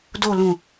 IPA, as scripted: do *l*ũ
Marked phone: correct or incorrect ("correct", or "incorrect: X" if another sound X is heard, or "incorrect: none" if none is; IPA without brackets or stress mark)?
correct